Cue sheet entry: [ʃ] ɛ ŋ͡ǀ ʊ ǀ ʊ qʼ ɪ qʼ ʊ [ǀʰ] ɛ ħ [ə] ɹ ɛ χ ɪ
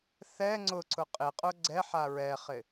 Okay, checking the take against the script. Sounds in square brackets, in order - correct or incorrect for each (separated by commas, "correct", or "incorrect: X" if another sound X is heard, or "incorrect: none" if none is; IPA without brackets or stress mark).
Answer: incorrect: θ, incorrect: ɡ͡ǀ, incorrect: a